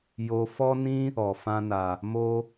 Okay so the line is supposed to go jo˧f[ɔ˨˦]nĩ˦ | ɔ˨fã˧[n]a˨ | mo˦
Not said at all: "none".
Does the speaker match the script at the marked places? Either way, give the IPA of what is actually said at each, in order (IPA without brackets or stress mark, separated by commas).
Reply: ɔ˦, n